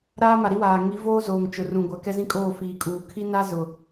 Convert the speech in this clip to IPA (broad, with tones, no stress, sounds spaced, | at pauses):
ɾ aː˦ m a˨ ɾ i˦ w aː˨ ŋ i˨˦ v oː˦ z oː˨ ŋ t͡ʃ ʊ˨ r ũ˨ ɡʷ a˨ k ɛ˦ z ĩ˦ kʼ oː˦˨ f iː˨ kʼ uː˨ kʰ i˦ n a˦ z ʊ˨